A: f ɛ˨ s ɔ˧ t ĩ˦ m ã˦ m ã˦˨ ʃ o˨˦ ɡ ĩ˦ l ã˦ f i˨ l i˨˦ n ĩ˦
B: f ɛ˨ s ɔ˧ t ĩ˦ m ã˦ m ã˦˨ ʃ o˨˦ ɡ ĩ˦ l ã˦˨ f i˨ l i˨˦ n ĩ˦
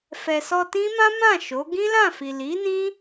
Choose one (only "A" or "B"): B